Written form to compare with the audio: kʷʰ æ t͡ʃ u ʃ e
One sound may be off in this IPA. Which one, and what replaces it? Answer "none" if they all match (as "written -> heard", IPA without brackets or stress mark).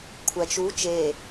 ʃ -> t͡ʃ